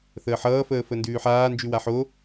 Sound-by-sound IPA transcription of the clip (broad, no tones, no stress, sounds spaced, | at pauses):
θ əː ħ ʌː f əː f ə n d ʉː ħ aː n d͡ʒ ʉ w a ħ o